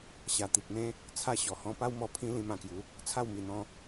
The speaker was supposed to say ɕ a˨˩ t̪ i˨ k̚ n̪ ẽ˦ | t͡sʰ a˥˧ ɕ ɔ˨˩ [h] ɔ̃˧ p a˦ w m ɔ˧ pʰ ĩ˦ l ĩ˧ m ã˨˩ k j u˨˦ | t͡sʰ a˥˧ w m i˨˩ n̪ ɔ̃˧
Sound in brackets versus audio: correct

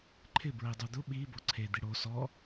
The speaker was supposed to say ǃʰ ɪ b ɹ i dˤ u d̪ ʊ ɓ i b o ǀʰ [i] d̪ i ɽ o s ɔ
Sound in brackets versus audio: incorrect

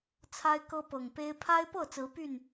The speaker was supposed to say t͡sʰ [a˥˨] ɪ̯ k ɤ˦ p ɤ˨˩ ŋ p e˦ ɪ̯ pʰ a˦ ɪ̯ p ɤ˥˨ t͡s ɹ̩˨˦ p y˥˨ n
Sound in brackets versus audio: incorrect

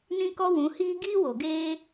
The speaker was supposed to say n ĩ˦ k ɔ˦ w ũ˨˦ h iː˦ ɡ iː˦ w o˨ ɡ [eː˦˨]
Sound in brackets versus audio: incorrect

